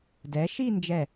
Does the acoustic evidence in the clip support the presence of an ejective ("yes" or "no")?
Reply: no